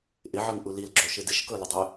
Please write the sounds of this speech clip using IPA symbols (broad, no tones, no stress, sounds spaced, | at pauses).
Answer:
ʔ ɪ ʕ ɤ ŋ ʔ u l i l ɡ͡ǁ o ʃ ɪ d ɪ ʃ k ɤ l ə dˤ œ